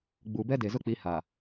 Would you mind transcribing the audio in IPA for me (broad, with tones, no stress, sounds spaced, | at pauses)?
ɡ͡b u˨ b ɛ˦ d e˨ z ʊ˦ k͡p i˨˦ h a˨